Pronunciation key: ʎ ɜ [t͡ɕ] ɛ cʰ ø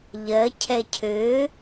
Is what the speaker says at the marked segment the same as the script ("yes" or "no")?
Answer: no